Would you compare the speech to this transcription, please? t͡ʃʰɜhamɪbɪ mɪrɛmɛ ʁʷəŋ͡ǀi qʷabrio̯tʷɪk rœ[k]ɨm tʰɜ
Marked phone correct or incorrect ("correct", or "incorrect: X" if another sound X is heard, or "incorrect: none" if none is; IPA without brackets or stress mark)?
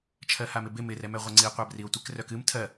correct